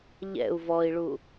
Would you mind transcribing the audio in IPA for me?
ʎ ɛ̰ u̯ v ɔ i̯ ɭ u

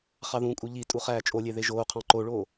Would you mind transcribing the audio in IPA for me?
χ ɑ ð ũ kʼ u ʎ i tʼ u χ æː t͡ʃʼ o lʲ e ð e ʒ oː qʰ ɑ̃ ǃ o ɭ oː

